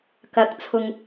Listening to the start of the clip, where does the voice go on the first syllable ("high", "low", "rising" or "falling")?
rising